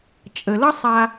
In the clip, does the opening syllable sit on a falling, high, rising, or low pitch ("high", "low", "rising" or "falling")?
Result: low